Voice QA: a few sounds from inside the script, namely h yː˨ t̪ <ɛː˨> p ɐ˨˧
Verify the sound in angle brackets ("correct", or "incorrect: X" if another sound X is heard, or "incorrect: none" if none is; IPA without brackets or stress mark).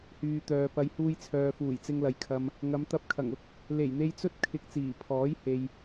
incorrect: œː˨